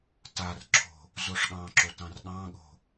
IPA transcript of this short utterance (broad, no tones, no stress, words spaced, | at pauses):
tarǁʰo̤ | zoʂɠɑ̃ǁo tɑ̃rɠɑ̃ɠo̤